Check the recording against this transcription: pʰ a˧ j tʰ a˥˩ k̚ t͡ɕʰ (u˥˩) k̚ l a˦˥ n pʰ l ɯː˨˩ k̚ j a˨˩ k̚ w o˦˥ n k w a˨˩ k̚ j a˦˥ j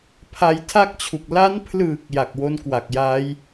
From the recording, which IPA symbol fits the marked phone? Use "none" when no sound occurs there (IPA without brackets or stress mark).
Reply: u˨˩